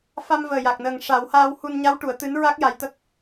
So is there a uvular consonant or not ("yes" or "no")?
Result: no